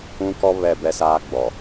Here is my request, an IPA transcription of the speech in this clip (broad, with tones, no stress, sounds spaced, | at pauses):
ũ˦ k ɔ˦ β ɛ˦˨ b ɛ˦ s aː˦ ɡ͡b ɔ˨